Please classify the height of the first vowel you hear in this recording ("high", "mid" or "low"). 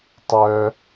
mid